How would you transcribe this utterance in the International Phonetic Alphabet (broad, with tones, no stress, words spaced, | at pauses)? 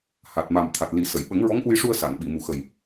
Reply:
ha˨˩t̚ ma˨˩m t̪ʰa˨˩t̚ li˨˩˦sə˨˩˨j ɓə˨˩˦ŋɹɔ˧˥ŋʔu˧jʂu˧ə̯ sa˨˩˨n ɓi˨˩˨mu˨˩xə˨˩j